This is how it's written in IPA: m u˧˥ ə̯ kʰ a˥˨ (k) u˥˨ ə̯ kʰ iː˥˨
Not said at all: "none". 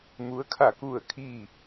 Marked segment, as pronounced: k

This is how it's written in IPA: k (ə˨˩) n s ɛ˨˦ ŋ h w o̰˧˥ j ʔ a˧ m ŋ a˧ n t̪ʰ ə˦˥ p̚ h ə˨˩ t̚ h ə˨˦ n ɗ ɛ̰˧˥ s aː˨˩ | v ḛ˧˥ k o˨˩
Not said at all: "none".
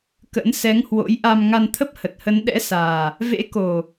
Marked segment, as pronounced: ə̰˧˥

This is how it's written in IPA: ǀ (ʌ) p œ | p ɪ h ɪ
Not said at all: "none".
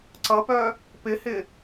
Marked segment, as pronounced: ʌ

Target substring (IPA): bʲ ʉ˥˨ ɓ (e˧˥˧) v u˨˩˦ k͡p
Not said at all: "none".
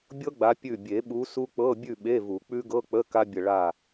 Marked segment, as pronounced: e˧˥˧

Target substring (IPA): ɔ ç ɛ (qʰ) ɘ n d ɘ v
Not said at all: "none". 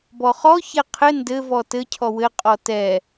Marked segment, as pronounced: qʰ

